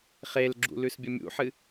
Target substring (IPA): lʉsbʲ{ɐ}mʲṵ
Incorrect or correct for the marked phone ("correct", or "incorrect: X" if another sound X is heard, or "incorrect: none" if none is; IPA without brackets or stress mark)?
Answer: correct